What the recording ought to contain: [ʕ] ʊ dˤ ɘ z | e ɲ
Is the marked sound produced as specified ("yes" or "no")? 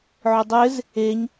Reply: yes